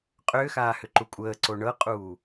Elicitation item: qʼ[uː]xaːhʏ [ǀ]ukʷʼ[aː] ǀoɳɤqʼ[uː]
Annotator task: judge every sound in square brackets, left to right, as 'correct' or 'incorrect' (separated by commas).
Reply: incorrect, incorrect, incorrect, correct